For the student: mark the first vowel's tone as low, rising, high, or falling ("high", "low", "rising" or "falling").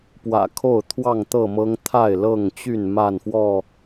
low